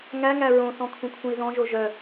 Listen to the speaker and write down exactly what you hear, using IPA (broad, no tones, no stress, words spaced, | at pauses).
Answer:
ŋæŋæ ɹõsɔ̃ kʰũkʰũi̯ðɔ̃ʒo ʒœ